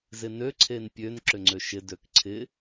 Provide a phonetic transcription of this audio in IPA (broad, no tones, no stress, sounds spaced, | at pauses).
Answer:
z ɪ n ø ǀʰ e n pʲ ø n ǁ ʏ ŋ͡ǀ ø ʃ ɪ d ø k ǀʰ ɪ